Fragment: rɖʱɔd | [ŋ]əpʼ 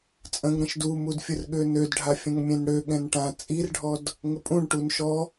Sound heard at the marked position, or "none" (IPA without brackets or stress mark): ŋ